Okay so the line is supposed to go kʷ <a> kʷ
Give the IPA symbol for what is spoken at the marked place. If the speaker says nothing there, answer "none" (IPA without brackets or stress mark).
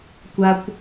a